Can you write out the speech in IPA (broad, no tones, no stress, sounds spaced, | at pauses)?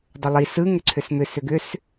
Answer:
dˤ ʏ lˠ i s ɯ ŋ ʏ ǀʰ ʏ s m ʏ s ʏ ɡ ʏ s